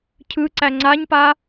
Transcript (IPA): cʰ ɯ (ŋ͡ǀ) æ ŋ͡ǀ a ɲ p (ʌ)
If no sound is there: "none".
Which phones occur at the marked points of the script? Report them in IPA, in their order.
ǀ, a

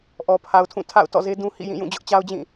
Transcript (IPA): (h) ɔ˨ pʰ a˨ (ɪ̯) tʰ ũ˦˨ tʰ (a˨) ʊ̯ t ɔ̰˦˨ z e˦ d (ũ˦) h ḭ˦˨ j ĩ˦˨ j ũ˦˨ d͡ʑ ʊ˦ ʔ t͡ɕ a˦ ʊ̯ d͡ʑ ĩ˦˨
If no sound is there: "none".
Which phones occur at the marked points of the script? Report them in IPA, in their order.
ʔ, ʊ̯, a̰˦˨, ũ˦

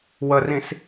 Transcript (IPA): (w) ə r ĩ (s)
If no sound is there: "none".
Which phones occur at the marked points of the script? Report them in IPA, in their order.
w, s

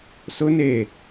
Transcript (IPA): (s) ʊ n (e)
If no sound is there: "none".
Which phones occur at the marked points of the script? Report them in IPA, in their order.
s, e

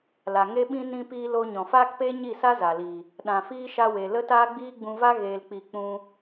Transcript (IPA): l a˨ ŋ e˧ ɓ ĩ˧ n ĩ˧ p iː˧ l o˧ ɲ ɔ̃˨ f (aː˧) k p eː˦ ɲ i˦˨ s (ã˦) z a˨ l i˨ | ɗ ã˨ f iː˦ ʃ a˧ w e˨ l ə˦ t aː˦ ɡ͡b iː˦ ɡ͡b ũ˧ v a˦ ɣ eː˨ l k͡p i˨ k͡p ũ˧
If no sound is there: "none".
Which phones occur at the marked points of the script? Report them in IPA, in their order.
aː˦, a˦

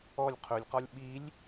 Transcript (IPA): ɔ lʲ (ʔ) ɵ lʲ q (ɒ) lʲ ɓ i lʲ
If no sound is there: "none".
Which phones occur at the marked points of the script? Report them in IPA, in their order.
qʰ, ɒ

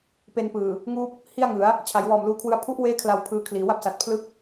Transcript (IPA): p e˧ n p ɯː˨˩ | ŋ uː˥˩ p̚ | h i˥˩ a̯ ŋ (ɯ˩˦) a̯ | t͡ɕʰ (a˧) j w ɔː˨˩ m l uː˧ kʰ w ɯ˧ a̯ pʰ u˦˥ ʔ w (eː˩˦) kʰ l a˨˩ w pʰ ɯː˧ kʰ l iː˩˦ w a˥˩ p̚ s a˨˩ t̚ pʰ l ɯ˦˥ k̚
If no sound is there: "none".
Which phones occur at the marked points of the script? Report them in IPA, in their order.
ɯ˩˦, a˩˦, eː˦˥

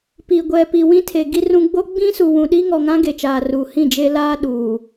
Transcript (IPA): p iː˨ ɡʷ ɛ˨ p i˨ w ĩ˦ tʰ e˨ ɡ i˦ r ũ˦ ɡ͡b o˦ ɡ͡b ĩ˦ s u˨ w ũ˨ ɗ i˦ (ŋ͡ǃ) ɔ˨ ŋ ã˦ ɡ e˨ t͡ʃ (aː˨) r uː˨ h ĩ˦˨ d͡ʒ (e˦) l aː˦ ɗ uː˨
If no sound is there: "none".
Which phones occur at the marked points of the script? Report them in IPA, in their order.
ŋ, aː˨, e˦

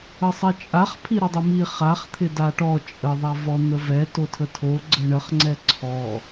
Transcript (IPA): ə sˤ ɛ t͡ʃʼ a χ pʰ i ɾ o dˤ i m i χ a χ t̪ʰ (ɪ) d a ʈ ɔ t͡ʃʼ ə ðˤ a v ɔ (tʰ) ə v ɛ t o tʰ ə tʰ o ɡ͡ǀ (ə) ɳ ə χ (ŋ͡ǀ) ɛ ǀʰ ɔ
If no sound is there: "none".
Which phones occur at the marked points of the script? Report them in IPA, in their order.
ɪ, n̪, ə, ŋ͡ǀ

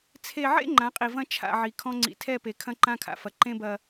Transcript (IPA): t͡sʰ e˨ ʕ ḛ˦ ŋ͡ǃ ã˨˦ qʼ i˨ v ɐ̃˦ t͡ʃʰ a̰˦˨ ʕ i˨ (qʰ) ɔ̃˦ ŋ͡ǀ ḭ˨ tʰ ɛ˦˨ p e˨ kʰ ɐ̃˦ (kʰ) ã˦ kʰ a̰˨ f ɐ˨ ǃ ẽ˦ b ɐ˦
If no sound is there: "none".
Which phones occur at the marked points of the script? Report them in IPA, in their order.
kʰ, ǃ

